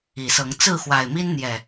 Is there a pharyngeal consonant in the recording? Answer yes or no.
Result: no